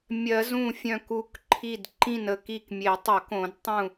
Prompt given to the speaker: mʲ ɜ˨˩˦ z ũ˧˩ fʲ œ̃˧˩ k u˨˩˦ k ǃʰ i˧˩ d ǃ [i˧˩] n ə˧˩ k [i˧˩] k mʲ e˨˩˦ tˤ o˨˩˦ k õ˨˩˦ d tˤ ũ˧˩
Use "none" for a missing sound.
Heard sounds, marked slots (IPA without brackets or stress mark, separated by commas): ĩ˧˩, i˧˩